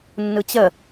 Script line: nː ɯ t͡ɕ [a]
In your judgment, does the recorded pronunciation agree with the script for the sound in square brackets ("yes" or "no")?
no